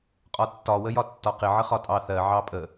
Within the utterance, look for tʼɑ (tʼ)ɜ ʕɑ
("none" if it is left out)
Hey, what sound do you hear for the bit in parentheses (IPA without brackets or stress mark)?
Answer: θ